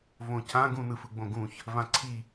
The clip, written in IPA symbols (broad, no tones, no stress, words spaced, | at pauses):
võcʰã ɡũnɯfɯɡ͡bõ ɡũç | vãǀʰi